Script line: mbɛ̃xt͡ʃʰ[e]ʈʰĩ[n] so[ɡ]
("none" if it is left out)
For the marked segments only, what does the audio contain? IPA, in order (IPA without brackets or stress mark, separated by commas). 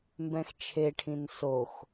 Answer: e, n, x